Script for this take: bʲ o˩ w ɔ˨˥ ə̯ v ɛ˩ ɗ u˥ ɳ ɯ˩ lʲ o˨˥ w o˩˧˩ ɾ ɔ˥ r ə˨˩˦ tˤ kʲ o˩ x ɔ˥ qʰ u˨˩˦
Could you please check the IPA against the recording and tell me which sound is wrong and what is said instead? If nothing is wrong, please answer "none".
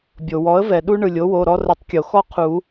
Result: none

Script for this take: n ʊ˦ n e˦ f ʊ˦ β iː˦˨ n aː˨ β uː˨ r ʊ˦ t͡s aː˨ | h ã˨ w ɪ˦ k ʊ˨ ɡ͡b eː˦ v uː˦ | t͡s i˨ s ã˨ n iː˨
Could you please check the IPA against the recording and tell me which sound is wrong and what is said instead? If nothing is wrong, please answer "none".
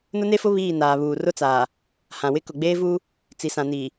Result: none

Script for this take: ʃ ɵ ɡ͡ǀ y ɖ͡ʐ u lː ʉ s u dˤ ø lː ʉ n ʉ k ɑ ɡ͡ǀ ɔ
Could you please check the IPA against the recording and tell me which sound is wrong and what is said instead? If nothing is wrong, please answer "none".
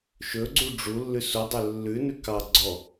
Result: y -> u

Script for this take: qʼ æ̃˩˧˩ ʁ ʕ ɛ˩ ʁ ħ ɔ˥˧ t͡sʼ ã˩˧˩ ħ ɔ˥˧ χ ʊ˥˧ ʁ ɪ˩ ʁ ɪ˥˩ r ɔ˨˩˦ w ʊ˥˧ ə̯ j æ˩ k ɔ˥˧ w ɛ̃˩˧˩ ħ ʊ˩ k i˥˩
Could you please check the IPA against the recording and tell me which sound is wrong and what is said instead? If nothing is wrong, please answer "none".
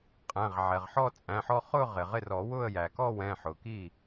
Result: ã˩˧˩ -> æ̃˩˧˩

